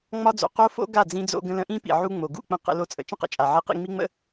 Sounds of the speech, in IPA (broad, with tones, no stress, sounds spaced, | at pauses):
ŋ͡m ɒ˦ d͡z o̰˨ q o˦ f o̰˦ ɡ a˦˨ d͡z ĩ˧ d͡z o̰˧ ɡ ə̃˧ l ə̃˧ ʔ ĩ˦ p ḭ˨ ʕ u˧ ŋ͡m o˨ ɡ ṵ˦˨ k͡p ə̃˧ q ə̰˧ l o˦ t͡sʼ ə̰˧ t͡ʃ ə̃˦ q ə̰˨ t͡ʃʼ a˨ ʕ i˧ q ḭ˧ ŋ͡m i˦ ŋ͡m ə̰˦